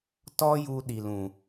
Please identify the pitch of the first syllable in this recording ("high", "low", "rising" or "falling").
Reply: high